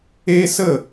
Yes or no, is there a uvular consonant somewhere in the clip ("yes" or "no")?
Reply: no